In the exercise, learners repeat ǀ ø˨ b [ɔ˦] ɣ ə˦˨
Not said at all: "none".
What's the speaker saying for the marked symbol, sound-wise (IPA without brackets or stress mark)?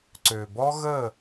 ɔ˦